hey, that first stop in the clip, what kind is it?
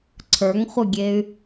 click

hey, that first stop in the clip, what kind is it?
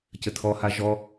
plain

